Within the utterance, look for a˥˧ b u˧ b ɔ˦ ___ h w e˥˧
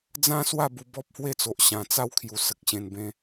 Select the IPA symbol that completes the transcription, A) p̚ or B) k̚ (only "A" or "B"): A